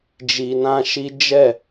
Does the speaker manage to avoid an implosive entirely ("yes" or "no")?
yes